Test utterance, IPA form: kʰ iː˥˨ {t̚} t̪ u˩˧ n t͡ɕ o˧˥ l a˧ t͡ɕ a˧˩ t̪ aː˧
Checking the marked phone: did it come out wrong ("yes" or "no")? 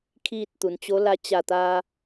no